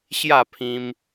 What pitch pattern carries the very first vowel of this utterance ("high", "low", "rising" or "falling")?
falling